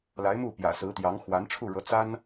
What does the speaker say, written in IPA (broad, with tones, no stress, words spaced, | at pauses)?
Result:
la˧˥ɪ̯mu˥˩ pjä̰˨˩sɹ̩˧˥t̪jɑ˧˥ŋ xwa˧˥nʈ͡ʂʰu˥˩ɻɤ˧˥ t͡sa˥n